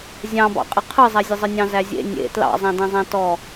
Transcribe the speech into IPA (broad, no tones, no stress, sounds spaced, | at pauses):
zʲ ɑ̃ b ɑ̰ qʼ ə qʰ ɯ zˤ æ zʲ ə zˤ ə nʲ ɑ̃ z æ zʲ ḛ nʲ ḛ t l ɑ̰ zˤ æ̃ d ẽ zˤ æ̃ t ɔ